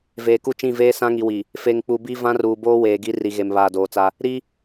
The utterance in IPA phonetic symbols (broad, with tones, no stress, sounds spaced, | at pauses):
v eː˨ k u˦ t͡ʃ ĩ˦˨ v eː˦ s ã˦ ŋ i˨ w i˨ | f e˨ ŋ k͡p u˨ b i˦ v ã˦ r uː˨ b oː˦ w eː˨ ɡ i˨˦ r i˨ ɣ e˨ m β aː˨ d oː˨ t͡s a˦ | ɾ i˦